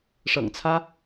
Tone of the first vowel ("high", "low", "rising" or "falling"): low